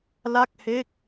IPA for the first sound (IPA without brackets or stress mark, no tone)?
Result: l